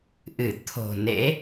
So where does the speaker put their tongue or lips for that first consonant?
throat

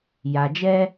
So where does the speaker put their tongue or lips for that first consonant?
palate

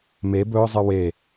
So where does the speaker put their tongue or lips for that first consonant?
lips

